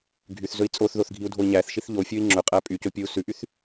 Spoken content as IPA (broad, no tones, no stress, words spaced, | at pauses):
ɡʱyθ zɵi̯t͡sʼoθðoθ ɡʱiu̯dʱoi̯ɲæθʃiθ ʎofʲoi̯ ŋ͡ǁɵqʼæ pʼyco pʲou̯sʉʔyθ